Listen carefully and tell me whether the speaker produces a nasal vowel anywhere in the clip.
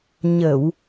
no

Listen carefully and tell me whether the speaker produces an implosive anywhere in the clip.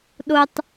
yes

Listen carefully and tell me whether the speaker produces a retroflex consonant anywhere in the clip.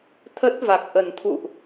no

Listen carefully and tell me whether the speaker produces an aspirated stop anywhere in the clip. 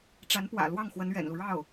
no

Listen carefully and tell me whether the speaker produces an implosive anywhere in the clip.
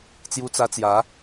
no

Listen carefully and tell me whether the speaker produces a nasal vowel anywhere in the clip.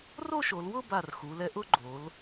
no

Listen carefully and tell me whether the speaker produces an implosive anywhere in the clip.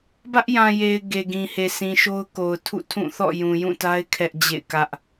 no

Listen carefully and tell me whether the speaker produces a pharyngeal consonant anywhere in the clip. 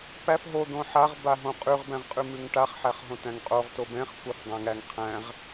yes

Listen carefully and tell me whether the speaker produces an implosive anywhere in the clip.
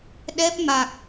yes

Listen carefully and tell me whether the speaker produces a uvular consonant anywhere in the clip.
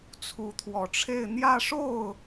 no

